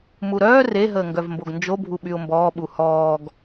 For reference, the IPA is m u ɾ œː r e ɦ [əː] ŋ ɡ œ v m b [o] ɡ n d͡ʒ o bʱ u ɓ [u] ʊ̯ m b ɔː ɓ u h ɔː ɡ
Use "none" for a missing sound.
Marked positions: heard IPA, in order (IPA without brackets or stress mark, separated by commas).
əː, o, y